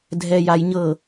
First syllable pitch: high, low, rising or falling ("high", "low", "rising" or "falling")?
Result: low